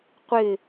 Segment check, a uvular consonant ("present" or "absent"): present